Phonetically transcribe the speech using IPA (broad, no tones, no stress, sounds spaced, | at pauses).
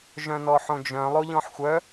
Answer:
ʒ œ̃ n ɔ ħ õ d͡ʒ œ̃ lˠ o ʎ ɔ̃ ħ xʷ œ